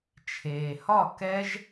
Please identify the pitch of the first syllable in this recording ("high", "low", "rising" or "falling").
low